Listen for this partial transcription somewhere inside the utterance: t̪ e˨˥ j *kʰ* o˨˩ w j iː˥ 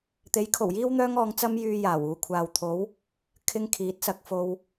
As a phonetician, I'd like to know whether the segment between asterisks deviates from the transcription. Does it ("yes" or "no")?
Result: no